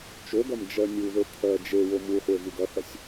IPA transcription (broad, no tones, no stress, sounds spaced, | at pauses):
t͡ʃ o ɡ ɐ m d͡ʒ ɜ nʲ u ð ə˞ t̪ʰ ɜ d͡ʒ e w o m u χʷ e v u ɡ ɐ θ ɐ sʲ